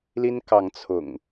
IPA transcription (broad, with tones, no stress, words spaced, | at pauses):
li˦nkɑ˨˦ŋ t͡sʰʊ̰˨˩ŋ